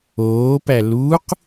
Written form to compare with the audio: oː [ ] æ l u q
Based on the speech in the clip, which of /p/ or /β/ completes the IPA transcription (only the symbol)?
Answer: p